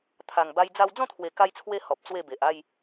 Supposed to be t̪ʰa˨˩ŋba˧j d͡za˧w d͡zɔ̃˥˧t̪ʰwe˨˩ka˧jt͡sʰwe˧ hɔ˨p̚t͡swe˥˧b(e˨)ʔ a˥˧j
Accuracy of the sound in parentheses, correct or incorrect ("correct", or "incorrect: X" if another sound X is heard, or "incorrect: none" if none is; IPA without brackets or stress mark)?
correct